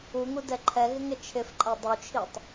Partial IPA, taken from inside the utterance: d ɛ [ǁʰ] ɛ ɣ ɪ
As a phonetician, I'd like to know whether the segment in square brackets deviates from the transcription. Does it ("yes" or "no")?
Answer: yes